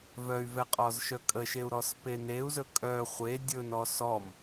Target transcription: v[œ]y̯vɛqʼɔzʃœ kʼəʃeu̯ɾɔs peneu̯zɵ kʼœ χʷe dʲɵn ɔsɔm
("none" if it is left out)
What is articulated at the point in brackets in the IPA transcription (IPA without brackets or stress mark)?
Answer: œ